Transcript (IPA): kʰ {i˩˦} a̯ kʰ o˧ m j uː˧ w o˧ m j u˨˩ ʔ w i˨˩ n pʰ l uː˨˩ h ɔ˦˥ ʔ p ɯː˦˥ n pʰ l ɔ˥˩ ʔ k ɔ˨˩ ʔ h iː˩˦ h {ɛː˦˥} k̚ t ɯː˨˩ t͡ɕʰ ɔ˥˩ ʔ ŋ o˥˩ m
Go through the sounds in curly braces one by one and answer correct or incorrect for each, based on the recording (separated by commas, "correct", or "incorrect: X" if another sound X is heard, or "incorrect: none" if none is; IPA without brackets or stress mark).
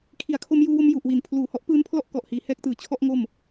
correct, correct